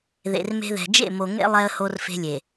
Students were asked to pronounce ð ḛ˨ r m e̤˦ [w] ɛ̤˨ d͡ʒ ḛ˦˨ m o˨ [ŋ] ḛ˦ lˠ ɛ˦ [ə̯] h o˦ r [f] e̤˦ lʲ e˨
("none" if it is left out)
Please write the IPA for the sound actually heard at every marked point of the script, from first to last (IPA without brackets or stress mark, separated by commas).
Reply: ð, ŋ, ə̯, f